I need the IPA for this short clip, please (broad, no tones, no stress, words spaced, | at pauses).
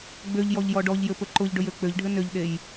ɡ͡bøʎ jɔʎjɔɖɔʎjɘ pɵǃʊʎɖɵj øk͡pøʎɖʱɘ nøʎɗej